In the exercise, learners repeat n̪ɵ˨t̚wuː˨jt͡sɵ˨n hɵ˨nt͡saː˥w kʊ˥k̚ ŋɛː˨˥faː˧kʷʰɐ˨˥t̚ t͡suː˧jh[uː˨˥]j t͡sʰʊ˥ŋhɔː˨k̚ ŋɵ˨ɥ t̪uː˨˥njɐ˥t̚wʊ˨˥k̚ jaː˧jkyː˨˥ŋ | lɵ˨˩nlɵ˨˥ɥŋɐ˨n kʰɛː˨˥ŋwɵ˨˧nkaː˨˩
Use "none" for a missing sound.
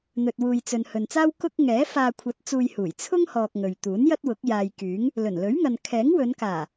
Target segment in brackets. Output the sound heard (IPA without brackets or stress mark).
uː˨˩